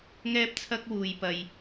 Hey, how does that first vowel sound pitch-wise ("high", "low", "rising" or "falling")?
high